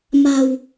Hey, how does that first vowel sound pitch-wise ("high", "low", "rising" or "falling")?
low